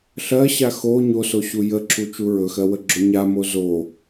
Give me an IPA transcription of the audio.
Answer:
ɬ ɜ ɕ a x o ɲ o s o ɕ u j ə ǁʰ u t͡ʃ u ɹ ɵ x ɜ w ə ɡ͡ǁ o ɲ a m o z o

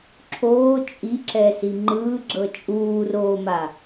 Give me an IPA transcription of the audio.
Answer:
ǁʰ oː t͡ʃʼ i ǁ ɛ s i ŋ͡ǃ ɯː ɡ͡ǁ ɤ t͡ʃʼ uː r oː m a

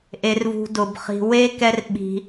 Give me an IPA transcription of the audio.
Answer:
ʔ e˨ r v ṳ˨ d ʊ˩ b χ i̤˨ w e˥ k ɛ˦ r ɓ i̤˨

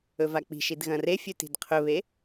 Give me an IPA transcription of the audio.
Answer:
ɵ v a k͡p i̤ ʃ i d ɣ ɐ̃ r e fʲ ʉ t i̤ d qʰ ɵ β e

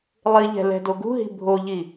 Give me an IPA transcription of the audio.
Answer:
lˠ i ʎ ɛ̤ l ɛ̤ d o ɡ ṳ ɦ i̤ bʱ o ʎ i

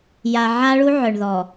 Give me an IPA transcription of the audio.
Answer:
j a˨ ʕ a˦ ɭ u˦ ʕ œ˨ ɳ ð ɔ˨

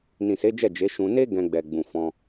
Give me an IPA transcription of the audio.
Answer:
n ĩ˨ s e˨˦ d͡ʒ ɛ˦˨ d͡ʒ e˨˦ ʃ ũ˧ n e˦ ɡ ɛ̃˧ ɡ͡b ɛ˨ ɡ͡b ũ˨ f ɔ̃˧

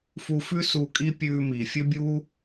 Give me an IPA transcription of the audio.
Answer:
f u˧ f ʉ˥ s u˧ kʼ i˥ pʲ ʉː˧ m iː˩ fʲ ɵ˥ bʲ uː˥

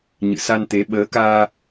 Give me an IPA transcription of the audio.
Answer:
ɲ ɨ̰˧˨ s a˧ n t̪ e˨˦ ɓ əː˨˦ k aː˧

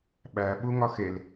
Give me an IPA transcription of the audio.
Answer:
ɓ æ ɓ u ŋ ɒ x e l

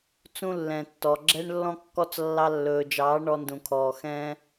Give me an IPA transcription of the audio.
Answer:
t͡s ũ˦ lː ɛ̃˨ tː ɔ˨ ɡ͡ǁ ɛ˦ ɳ lː ɔ̃˦ kː ɔ˦ t͡s lː ɑ˧ lː ɵː˨ d͡ʒ ɑː˨˦ ɳ ɔ˧ n d ũ˨ kʰ ɔː˨ x ɛ̃˦

